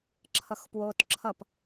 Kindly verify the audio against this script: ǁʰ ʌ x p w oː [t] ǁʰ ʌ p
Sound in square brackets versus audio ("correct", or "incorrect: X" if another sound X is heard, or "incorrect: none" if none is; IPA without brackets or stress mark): correct